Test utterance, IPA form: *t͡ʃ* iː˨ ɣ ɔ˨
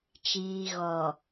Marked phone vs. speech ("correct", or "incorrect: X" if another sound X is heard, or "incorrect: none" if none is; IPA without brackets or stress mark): correct